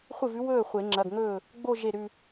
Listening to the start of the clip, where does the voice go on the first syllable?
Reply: falling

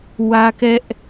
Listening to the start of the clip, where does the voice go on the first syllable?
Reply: high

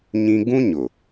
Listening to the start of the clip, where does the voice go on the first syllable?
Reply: high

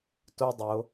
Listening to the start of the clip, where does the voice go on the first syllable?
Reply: high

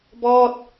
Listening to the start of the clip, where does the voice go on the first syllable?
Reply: falling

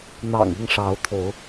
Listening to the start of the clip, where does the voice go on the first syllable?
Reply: low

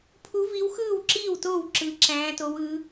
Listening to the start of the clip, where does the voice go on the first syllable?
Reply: rising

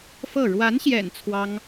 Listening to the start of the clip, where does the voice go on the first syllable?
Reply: falling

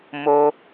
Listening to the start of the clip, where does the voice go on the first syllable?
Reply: high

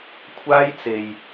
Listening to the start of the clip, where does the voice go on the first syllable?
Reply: high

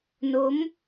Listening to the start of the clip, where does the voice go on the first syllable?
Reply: rising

